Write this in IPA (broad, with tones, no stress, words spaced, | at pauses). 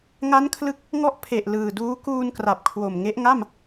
ŋa˦˥nkʰlɯ˦˥k̚ | ŋɔ˥˩ʔ pʰe˨˩ʔlɯː˨˩ duː˦˥kuː˧nkra˨˩p̚ kʰwo˨˩m ŋe˦˥ʔŋa˥˩m